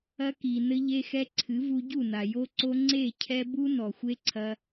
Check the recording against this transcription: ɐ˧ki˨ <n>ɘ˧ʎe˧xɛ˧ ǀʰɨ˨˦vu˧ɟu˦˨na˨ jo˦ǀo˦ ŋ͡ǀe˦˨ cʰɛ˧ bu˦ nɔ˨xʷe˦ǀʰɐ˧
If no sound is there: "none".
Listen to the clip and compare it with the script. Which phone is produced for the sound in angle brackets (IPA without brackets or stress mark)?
n